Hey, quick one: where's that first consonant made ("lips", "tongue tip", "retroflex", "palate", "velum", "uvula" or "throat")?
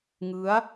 velum